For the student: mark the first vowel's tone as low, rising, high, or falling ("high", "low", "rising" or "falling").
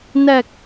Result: low